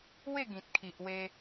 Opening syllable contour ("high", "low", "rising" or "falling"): falling